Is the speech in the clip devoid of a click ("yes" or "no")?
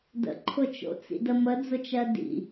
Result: no